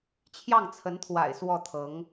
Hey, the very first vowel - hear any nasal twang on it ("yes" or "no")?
no